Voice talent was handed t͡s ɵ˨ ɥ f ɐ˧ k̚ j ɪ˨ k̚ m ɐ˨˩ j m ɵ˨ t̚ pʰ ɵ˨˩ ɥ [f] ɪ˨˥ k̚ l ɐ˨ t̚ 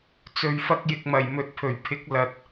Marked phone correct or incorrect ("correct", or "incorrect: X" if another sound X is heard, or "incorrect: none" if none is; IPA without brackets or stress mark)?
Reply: incorrect: pʰ